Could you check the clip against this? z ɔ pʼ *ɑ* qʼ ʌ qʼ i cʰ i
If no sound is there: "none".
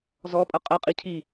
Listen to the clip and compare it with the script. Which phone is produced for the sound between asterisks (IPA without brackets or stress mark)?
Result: ʌ